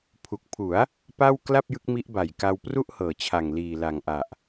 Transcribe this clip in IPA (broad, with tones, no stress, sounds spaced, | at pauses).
pʰ u˨˩ k̚ pʰ u˩˦ a̯ | p a˥˩ w k l a˥˩ p̚ j ɯ˦˥ k̚ m i˦˥ ʔ b a˨˩ j k a˧ w p r u˥˩ ʔ h ɤː˨˩ t͡ɕʰ a˨˩ ŋ l iː˨˩ l a˨˩ ŋ ʔ a˨˩ ʔ